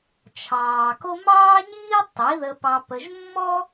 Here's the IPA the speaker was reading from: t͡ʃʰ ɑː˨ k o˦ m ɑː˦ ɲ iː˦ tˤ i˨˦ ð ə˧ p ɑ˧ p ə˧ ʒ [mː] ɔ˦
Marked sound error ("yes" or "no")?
no